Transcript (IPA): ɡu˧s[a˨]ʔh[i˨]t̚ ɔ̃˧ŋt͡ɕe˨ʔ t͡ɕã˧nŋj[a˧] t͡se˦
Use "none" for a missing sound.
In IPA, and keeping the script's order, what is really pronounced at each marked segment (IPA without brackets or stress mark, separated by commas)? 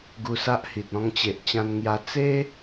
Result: a˦, i˨, a˧